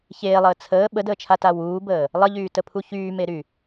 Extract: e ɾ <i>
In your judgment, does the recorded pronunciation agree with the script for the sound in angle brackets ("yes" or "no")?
no